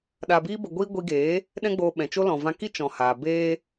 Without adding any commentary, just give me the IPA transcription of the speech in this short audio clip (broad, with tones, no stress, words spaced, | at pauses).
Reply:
ɗa˨biː˧bə˨ɡʷiː˧ ɡʷi˧ɡeː˨˦ | ɗɛ̃˦ɡ͡boː˧ ɓɛ̃˨t͡ʃo˦ lɔ̃˨vã˧ki˦ t͡ʃɔ̃˨haː˨beː˦